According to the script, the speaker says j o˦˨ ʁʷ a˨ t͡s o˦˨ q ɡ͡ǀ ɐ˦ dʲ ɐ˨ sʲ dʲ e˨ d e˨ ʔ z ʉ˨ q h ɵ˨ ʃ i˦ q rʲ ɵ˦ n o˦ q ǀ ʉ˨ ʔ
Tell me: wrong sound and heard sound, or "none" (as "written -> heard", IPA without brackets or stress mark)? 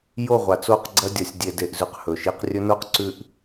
none